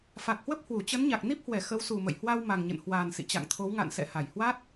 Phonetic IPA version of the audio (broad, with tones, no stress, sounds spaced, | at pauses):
f a˨˩ k̚ h w ə˦˥ p̚ h w u˧˩ t͡ɕ ə˨˦ n ɲ a˨˩ k̚ n i˦˥ p̚ h w ɛ˧˩ x ə˨˦ w s u˨˩ m ə̰˧˨ j h w a˧ w m a˨˩ ŋ ɲ ə̰˧˨ n h w aː˨˩ n s ḭ˧˨ t͡ɕ a̰˧˨ ŋ t̪ʰ o˨˦ w ŋ a̰˧˨ n s ɛ̰˧˨ h a˧˩ j h w a˦˥ t̚